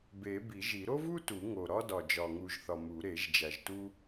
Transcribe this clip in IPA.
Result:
b e˨˩˦ b i˨˩˦ ʒ i˨˩˦ ɾ o˥ v u˥ t u˨˩˦ ŋ o˨˩ ɾ ɒ˥ d ɒ˨˩ d͡ʒ ɒ˨˩ ŋ u˨˩ ʒ θ ɒ˨˩ m u˨˩˦ ɾ e˨˩˦ ʒ d͡ʒ æ˨˩ ʒ t u˥

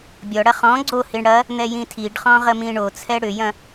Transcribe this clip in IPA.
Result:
bʲ ɔ ɽ ɐ χ ɔ̃ ɡ͡ǀ o h i ɳ ɽ ɐ | n̪ ɛ j ĩ tʰ i ɖ χ ɔ̃ ʁ ə m ĩ ɳ o t͡sʰ ɛ ɽ ʏ j ɐ̃

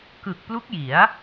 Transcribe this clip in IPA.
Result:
k ɯ˨˩ k̚ p l u˦˥ k̚ j i˩˦ a̯

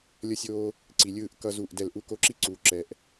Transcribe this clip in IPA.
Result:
lʲ ʌ˦ sʲ oː˦ | ǀ i˨ lʲ ɯː˦˨ ʔ k ʌ˦ z u˦˨ ʔ d ɛ˦˨ l ʔ u˦ k o˦˨ ǁ i˦ ǀ uː˨ ǁ ɛ˨ ʔ

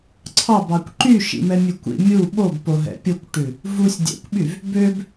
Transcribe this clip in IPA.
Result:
ǀʰ ɑ b ɑ kʷ ǃ y ʃ ḭ m ɛ mʲ ʉ kʷ ḭ mʲ u ɓ o b p o ɦ ɛ̰ pʲ o kʷ ʈ ʉ | v u sʲ dʲ ɛ̰ kʷ ɓ y v | b ø b

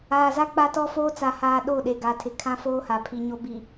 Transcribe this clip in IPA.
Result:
aː˨ z a˦ k͡p a˦ t ɔ˦ f oː˦ t͡s a˨ h aː˨ ɗ o˦˨ ɗ e˨ ɡ a˨ tʰ ɪ˨ kʰ ã˦ f oː˦ h a˨ pʰ i˨ ɲ o˦ b i˨

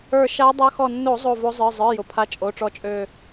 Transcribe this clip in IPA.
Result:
ə˞˧˩ ʃ a˧˥ dˤ a˧˥ x ɔ˧˩ nː o˧˩˧ zˤ o˧˩ v o˧˥ zˤ ə˞˩˧˩ zˤ ə˞˩˧˩ j ʊ˩ pʰ a˧˥ t͡ʃʼ o˩˧˩ ʈ͡ʂ ɔ˧˥ t͡ʃʼ ø˧˩

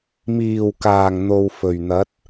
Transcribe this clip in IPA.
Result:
m iː˨˩ w k aː˨˩ ŋ n̪ o˨ w f ɵ˨˩ ɥ n̪ ɐ˨˥ t̚

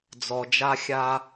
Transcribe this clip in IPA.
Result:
d͡z ɔ˧ d͡ʒ a˥ xʲ a˥

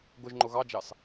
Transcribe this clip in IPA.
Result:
ɡ ʊ ʒ ŋ͡ǃ ʊ ɣ ɑ d͡ʒ ɑ s

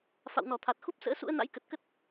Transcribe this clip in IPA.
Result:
f a̰˧˨ w n ɔ˧˩ t̪ʰ a˨˩ t̚ x u˦˥ p̚ s ə̰ː˧˥ s ṵ˧˥ ə̯ n a̰˧˥ j k ə˨˩ t̚ k ə˦˥ t̚

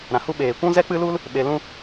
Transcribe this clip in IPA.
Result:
ɾ ã˨ h u˦ ɓ eː˨ kʷ ũ˦ z ɛ˦ k͡p ɨ˦ l u˦ l | ɓ e˧ l ũ˦

